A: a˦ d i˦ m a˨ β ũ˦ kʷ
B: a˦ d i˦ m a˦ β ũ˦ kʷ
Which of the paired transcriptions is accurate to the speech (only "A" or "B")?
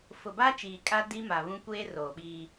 A